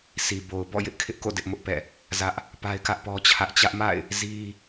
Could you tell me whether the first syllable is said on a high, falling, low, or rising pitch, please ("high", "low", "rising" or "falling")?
low